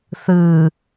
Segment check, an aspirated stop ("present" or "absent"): absent